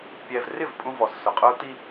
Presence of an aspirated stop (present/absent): absent